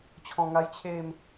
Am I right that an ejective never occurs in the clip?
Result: yes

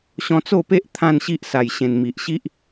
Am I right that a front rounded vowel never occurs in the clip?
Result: yes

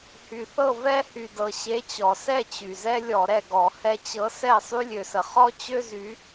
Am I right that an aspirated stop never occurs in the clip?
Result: yes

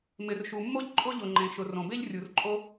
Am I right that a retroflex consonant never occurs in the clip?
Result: yes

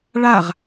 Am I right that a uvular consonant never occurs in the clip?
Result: no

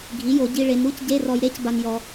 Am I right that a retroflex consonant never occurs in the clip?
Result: no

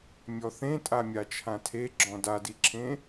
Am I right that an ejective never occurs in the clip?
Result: no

